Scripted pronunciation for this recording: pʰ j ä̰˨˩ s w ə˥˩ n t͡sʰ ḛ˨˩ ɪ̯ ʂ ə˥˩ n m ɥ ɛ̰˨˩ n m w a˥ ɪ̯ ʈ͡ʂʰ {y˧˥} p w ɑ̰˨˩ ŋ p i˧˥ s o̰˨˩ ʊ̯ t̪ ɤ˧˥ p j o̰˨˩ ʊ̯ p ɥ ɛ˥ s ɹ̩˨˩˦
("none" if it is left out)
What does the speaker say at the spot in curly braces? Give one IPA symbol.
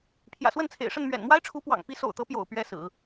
u˧˥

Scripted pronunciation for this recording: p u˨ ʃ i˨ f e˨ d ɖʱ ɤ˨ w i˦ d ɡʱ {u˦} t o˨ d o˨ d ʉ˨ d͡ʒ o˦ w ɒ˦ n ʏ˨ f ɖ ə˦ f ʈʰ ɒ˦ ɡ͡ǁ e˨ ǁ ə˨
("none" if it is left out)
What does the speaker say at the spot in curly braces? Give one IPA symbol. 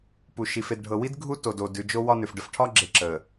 u˦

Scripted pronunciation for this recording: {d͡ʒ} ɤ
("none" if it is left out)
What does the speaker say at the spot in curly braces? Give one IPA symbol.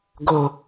ɡ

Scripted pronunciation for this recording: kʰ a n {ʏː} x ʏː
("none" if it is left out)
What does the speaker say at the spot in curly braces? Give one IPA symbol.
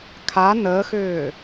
əː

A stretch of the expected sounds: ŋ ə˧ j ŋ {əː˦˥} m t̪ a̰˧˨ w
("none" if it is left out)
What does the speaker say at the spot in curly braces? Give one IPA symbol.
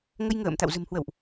ə̰ː˧˨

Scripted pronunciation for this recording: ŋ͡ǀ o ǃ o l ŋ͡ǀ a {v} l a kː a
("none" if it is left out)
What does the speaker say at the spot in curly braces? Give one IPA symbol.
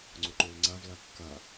v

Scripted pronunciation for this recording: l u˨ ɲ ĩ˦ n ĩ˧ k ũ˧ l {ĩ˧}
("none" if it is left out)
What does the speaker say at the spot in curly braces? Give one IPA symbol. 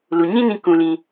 ĩ˧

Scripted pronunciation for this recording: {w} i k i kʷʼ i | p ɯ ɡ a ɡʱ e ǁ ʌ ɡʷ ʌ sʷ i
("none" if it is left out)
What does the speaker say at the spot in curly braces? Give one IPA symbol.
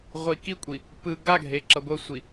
ʁʷ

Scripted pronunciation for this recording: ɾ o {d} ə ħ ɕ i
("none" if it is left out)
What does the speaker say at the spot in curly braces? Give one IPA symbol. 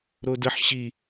d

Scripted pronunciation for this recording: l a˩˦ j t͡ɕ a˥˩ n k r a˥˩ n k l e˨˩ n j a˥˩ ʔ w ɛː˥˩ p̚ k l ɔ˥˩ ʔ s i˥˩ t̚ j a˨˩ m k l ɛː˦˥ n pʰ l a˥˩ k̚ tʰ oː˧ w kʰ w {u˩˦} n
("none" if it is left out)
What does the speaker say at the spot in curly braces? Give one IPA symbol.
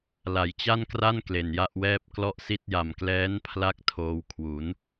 u˩˦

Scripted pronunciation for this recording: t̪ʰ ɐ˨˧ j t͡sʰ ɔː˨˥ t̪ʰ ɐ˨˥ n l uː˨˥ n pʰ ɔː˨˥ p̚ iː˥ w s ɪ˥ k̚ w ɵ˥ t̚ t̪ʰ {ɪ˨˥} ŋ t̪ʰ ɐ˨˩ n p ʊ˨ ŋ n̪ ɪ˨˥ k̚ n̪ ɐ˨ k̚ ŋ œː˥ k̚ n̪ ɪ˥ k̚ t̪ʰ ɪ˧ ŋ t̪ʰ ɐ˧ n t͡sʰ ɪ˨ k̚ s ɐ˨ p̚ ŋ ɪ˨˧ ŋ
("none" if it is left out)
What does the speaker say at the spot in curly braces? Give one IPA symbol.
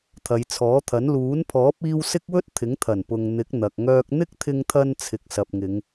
ɪ˨˥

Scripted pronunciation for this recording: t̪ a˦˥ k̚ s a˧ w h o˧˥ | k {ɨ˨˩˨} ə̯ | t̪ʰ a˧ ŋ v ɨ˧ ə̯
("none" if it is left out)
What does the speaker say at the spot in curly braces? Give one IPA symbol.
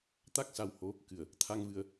ɨ˨˩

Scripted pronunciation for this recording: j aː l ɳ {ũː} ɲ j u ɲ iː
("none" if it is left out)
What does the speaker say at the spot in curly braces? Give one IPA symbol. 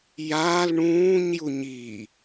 ũː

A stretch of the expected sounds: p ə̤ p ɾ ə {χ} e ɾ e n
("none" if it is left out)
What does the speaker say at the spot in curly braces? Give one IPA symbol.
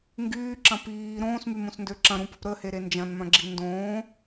h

